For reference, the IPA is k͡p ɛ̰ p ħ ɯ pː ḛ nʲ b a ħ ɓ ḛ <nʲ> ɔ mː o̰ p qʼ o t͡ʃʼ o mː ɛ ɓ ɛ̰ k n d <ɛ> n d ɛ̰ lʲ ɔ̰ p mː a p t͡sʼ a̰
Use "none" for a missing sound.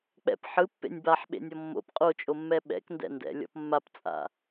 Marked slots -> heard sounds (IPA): nʲ, ɛ̰

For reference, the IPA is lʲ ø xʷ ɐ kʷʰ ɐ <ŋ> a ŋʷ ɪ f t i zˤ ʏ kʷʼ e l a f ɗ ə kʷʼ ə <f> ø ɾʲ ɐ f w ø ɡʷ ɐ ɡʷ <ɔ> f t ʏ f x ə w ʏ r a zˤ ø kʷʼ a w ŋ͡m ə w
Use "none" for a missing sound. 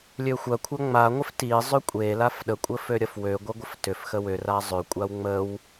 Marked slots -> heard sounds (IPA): ŋ͡m, f, ə

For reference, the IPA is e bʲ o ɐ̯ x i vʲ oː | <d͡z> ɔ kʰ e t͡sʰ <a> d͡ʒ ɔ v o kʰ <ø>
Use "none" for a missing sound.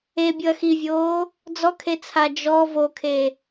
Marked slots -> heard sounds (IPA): d͡z, a, e

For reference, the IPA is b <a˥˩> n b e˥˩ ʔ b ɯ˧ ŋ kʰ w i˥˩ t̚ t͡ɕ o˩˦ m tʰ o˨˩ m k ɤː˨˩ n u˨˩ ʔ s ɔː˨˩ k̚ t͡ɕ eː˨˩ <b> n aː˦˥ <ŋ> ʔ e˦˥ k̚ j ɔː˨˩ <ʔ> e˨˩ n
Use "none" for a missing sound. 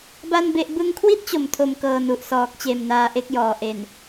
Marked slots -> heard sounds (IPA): a˥˩, m, none, ʔ

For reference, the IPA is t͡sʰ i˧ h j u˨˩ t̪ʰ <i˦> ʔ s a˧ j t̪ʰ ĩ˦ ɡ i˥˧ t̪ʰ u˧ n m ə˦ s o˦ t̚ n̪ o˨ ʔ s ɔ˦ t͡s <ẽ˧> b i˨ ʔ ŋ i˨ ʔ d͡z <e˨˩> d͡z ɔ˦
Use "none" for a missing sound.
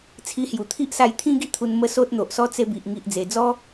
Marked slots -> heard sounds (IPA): i˦, e˧, e˨˩

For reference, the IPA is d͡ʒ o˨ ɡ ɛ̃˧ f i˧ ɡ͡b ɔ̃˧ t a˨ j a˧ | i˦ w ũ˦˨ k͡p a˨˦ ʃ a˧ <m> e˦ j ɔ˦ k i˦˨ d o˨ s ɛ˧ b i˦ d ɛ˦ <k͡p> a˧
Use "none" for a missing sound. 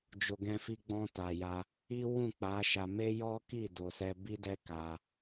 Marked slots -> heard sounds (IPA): m, k

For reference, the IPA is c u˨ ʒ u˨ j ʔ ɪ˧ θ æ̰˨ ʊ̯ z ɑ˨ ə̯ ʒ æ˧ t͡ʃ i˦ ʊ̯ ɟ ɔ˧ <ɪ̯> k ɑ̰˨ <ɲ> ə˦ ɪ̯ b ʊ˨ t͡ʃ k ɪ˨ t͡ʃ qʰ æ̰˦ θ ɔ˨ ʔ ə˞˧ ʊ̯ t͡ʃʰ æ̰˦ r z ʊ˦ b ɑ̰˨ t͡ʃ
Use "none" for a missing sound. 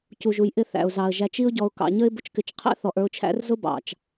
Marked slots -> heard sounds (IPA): ʊ̯, ɲ

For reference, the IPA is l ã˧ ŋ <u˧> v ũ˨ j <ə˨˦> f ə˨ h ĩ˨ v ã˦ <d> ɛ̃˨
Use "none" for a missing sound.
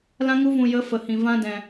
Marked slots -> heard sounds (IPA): u˧, ə˨˦, d

